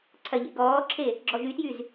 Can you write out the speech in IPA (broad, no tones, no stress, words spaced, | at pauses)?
ǀʰɐʎḛ ɡɔːǁʰe | ɡ͡ǁɔʒytjyz